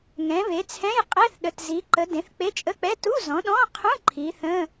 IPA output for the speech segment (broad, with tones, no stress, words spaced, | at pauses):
ŋɛ̃˨˦βe˨˦t͡sʰɛ̃˧˥˧j qʼɛ˧˥˧θɗə˨˦tzi˨˦ǃə˨˦ dẽ˨˦θk͡pe˧˥˧t͡ʃʼə˧˥˧k͡pɛ˧˥˧ tu˧˥˧zɔ̃˨˦ɗɔ̃˧˥˧qʰũ˧˥˧ ǃʰi˨˦θə̃˧˥˧